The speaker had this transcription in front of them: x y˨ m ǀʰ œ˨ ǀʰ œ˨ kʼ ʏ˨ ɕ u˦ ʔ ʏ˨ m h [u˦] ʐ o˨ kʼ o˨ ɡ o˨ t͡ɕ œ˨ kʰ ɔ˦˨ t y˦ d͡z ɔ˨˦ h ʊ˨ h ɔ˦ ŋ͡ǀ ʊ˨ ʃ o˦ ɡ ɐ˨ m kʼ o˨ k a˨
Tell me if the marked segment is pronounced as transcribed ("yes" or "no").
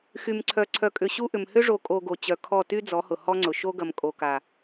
no